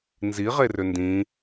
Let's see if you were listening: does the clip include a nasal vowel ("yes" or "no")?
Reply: yes